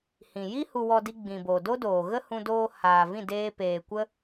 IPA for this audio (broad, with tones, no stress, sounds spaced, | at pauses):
h ĩ˨ j i˦ h u˧ w ɔ˧ d i˧ ɡ͡b ĩ˨ b o˨ d o˦ d oː˨ ɣ ə˦ h ũ˧ d oː˧ h aː˨ v ĩ˦˨ d eː˧ p eː˨ kʷ ə˦